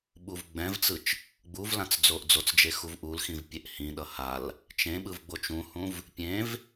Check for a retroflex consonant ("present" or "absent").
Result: absent